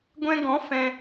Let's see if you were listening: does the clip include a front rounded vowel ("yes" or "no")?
no